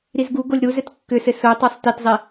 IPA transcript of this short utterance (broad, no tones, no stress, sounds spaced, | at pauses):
ɾ i z ɡ u ɡ o lʲ ɾ u z ɘ t kː ʏ s ɘ s o tˤ o sˤ t i t zˤ i